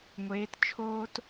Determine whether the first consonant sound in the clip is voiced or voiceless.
voiced